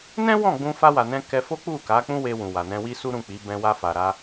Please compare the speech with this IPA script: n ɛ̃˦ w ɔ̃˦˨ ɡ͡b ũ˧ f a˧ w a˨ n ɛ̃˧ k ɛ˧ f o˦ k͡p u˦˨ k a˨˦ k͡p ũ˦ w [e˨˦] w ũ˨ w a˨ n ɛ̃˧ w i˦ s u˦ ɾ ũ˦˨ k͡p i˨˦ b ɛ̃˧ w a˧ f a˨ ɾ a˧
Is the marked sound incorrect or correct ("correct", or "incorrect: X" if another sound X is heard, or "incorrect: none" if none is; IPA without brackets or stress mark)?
incorrect: e˧